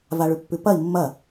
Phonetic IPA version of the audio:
v a ɭ ʉ pː ʉ p ɐ i̯ mː ɐ

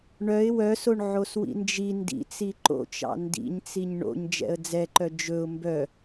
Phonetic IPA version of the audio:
ɳ œ ɪ̯ w œ s o ɳ ʕ o s w ḭ n d͡ʒ i n d ḭ t͡s i ǃ o̰ t͡ʃ ɑ̰ n d ḭ ɲ t͡s i ɲ ɳ o̰ ɲ d͡ʒ ɛ̰ ə̯ d͡z ɛ ǃ œ d͡ʒ ɵ ʊ̯ m b œ

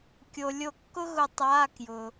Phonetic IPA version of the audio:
kʲ o˩ lʲ o˨˩˦ kː ʊ˧ ɣ ʊ˨˩˦ tˤ aː˩˧˩ k j ʊ˩

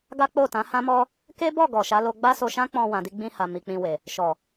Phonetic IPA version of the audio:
ɡ a˦ k͡p o˦˨ t ã˨˦ h ã˦ m ɔ˦ | k e˦ b ɔ˦˨ ɡ ɔ˨ ʃ a˨˦ l o˧ ɡ͡b a˦ s o˧ ʃ ã˦ k͡p ɔ̃˧ w ã˨ d i˧ ɡ͡b ĩ˧ h a˨ m i˨ k͡p ĩ˧ w e˨ | ʃ ɔ˨

